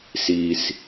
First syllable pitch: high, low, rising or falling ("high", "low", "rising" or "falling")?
low